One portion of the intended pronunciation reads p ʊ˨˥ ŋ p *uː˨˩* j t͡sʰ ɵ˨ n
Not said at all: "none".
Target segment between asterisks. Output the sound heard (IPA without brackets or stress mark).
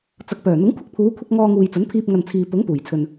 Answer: uː˨˩